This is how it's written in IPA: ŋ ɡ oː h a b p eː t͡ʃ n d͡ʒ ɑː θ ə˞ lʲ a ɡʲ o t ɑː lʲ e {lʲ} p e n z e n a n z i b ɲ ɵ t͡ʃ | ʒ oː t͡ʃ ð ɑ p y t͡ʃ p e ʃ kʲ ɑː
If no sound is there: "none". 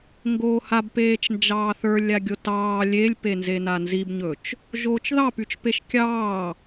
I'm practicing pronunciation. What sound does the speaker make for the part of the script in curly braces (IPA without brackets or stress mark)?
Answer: lʲ